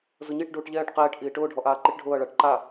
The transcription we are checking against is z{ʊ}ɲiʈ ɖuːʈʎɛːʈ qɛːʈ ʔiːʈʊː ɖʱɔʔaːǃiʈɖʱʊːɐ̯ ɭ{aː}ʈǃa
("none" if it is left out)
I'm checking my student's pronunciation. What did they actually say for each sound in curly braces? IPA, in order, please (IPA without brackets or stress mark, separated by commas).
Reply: ʊ, a